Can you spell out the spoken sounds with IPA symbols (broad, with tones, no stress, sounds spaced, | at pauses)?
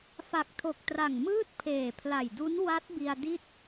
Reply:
f a˨˩ k̚ tʰ o˨˩ k̚ t r a˨˩ ŋ m ɯː˥˩ t̚ pʰ eː˨˩ pʰ l a˨˩ j d u˦˥ n w a˦˥ t̚ b i˧ a̯ d i˥˩ t̚